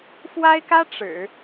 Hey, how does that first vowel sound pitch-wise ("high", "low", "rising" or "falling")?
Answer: high